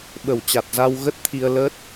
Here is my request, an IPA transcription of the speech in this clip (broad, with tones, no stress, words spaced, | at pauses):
ɓə˨˩wt͡ɕa˨˩t̚za˧w ɣə˦˥t̚t̪ʰi˧ə̯lə˦˥t̚